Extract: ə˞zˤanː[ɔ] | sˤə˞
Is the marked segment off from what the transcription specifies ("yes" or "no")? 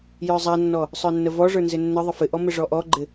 no